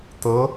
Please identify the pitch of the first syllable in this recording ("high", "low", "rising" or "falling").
rising